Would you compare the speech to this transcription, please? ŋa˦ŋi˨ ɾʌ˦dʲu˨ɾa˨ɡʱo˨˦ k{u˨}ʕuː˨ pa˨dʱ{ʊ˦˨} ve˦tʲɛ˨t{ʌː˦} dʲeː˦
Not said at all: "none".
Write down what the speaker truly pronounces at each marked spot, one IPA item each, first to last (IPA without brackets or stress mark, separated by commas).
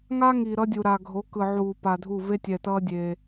ɯ˨, u˦˨, ʌː˦